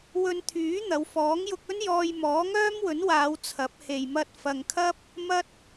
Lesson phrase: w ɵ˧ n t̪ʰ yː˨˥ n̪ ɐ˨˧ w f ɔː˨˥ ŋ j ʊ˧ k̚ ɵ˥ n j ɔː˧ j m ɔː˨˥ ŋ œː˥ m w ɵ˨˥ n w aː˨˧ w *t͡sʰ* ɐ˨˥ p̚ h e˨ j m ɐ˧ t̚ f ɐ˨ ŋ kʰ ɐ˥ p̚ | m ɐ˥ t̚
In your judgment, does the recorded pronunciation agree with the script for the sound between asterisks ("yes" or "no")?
yes